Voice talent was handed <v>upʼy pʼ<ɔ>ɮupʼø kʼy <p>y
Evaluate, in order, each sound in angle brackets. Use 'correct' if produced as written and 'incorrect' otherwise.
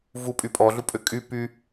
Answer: correct, correct, correct

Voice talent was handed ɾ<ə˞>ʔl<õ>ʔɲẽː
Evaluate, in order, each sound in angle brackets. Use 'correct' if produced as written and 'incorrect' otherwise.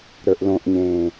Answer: correct, correct

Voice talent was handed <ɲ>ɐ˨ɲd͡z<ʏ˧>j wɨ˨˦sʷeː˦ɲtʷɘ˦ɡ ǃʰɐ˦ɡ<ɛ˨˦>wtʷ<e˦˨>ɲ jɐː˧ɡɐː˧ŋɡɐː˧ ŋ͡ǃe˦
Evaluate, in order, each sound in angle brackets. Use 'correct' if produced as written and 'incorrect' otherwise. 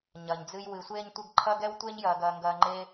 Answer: correct, incorrect: ɨ˧, incorrect: ɛ˦, incorrect: e˦

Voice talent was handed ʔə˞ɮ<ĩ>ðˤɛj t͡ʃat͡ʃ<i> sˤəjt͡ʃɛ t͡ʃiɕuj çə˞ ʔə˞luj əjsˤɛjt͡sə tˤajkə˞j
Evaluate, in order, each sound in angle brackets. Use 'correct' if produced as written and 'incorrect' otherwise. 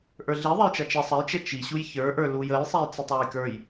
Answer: incorrect: i, correct

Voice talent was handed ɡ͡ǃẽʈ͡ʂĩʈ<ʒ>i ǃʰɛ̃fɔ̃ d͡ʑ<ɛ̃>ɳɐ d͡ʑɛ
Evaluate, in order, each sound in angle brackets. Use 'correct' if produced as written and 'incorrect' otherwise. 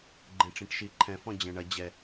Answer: incorrect: ʃ, correct

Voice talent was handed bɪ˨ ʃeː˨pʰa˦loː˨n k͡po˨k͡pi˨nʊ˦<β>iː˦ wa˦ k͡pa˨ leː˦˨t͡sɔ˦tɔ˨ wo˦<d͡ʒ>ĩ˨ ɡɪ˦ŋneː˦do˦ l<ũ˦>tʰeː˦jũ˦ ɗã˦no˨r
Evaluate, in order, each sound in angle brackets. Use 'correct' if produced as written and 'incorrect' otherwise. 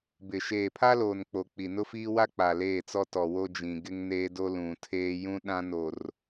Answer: incorrect: f, correct, incorrect: ũ˨

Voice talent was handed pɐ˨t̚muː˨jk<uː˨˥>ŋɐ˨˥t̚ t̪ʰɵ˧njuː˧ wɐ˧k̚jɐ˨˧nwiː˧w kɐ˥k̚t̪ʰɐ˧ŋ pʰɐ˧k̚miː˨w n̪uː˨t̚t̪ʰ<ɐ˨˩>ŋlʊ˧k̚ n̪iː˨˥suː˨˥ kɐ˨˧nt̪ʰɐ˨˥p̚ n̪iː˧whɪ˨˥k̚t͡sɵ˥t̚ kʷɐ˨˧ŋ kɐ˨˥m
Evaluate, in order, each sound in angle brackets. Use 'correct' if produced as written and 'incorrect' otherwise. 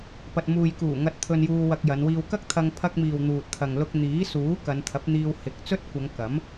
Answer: incorrect: uː˨˩, incorrect: ɐ˨

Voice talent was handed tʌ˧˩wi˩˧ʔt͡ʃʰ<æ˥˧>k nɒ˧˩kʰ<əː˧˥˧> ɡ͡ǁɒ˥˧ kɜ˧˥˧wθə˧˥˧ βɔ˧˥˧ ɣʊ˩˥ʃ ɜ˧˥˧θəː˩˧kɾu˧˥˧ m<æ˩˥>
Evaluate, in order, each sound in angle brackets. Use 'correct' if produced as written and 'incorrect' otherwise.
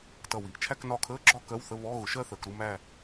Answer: correct, correct, incorrect: æ˥˧

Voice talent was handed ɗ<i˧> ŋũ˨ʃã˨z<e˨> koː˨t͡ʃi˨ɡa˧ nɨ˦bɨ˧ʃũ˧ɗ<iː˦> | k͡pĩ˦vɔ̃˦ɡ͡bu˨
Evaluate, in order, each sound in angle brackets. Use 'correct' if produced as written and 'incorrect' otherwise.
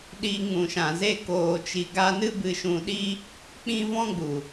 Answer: correct, incorrect: e˧, incorrect: i˦

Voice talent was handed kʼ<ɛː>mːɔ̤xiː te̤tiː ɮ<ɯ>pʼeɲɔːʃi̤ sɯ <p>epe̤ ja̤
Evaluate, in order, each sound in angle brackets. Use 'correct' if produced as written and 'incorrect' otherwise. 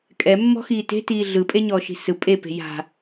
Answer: incorrect: ɛ, correct, incorrect: pʼ

